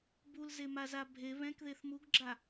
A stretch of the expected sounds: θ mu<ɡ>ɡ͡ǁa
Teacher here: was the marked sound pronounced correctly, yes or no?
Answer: yes